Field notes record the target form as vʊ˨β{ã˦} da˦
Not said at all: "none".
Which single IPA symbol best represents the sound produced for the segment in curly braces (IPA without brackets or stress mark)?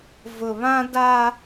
ã˦